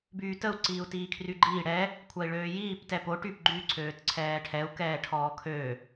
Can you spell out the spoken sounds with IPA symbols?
byːtəu̯ ǀiːu̯tiːkʰryɡ͡ǃiː ɽɛ | kʷʰai̯ɭøːjiːp tɛpo ʈyp ɡ͡ǃy ǀʰøːtǀʰɛːʈʰɛu̯ kɛːʈʰɔːkʰø

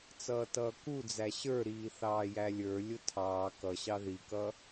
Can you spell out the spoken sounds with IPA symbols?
t͡sʌːtʌːkud͡zæ ɕə˞ɾiː θɑːjælʲə˞lʲʊ tʰɑː kʌɕɑ ðikʌ

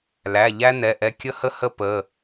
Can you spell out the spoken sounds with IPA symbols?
læ˩˧˩ʎæ˥ nɛ˩˧˩ʔɛ˥ kʲə˥hə˥ hə˥pə˩˧˩

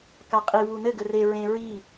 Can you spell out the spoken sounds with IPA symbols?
kaqʼi βunɘ ɡɘre ɹẽ ɹi

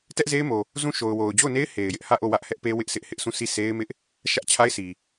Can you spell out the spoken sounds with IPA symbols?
tɛ˦ʔze˦ɪ̯mo˨ | zũ˦˨ʃo˨ʊ̯ wo˨ʊ̯d͡ʑo˦˨ʊ̯ne˦ɪ̯ he˨ɪ̯jɪ˦ʔhä˦˨ʔo˦˨ wä˦ʔhɛ˦ʔpe˦ wɪ˦ʔsɪ˦ʔhɪ˦ʔ sũ˦˨sʰi˦˨se˦ɪ̯ mɪ˦ʔ | ʃä˦ʔt͡ɕʰa˦ɪ̯sʰi˨

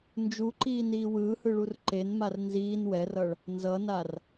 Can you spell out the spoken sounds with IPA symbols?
nd͡ʒuǃiː niːwɯːhɯ ɭurǃenmar nziːn wɛrʌɭ | nzʌnar

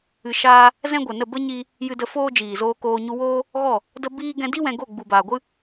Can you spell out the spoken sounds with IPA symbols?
ɨ˧ʃaː˦ | zɛ̃˦ɡʷɛ˨nə˦˨ bə˦ ɲi˦ | jɨ˧də˧ foː˦d͡ʒiː˨zoː˧koː˧ ɲu˧woː˦ | ɣɔ˦˨ | də˧ biː˦ ɡɛ̃˧di˦ wɛ̃˧ɡo˦˨ ɡ͡bu˨baː˨ɡʷɨ˦

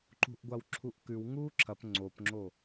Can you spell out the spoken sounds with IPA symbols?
ǃṳʔɡʷawǁʰuʔkʉw ŋuːǁʰɐp ŋ͡ǀopŋ͡ǁo

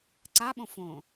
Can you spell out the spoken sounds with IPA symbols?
ǀaɓõ fõ

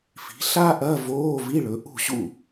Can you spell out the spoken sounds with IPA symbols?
fi̤˩˥ɬa˥ʔɐ˧˥˧ voː˧˥˧vi˧˥˧ɭɵ˩˥ ʔṳ˥˩ɕṵ˥˩

